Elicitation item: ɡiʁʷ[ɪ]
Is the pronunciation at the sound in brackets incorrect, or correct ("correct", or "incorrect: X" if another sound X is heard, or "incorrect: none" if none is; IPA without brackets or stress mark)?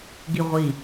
incorrect: i